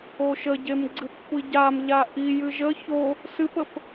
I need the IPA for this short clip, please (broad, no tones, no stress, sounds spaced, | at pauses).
o ʃ ə ɟ e m ɡ͡ǀ ɨ p xʷ i ɟ a m ʎ a ʔ i j ɨ ʒ ə ç o | s ɨ p ə p